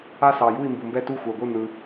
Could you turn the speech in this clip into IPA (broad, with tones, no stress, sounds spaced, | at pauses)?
a˥˨ s ɑ˨ j u˥˨ i̯ m b u˨ m b ɛ˥˨ t u˥˨ xʷ ɛ˨ ɡʷ ɯ˥˨ n̪ ɯ˨